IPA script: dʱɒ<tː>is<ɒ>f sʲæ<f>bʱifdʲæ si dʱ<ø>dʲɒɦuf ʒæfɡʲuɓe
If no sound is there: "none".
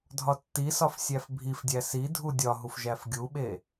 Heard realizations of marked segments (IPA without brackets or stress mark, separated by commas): tː, ɒ, f, u